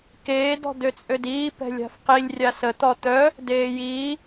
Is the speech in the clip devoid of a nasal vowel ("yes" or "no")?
yes